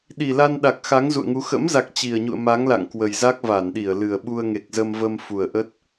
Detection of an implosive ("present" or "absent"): present